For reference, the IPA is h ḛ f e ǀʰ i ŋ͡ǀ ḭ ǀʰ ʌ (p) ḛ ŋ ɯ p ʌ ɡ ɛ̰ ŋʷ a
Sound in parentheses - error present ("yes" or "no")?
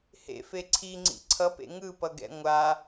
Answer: no